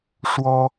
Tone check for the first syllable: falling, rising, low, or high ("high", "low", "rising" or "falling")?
high